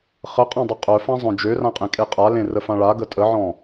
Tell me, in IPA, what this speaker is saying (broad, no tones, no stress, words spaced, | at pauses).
χəqʼãdˤə qʼœfã zˤœ̃d͡ʒørãqʼẽ kʼeqʼalẽ rəfãɭa ɡətʼəʕɔ̃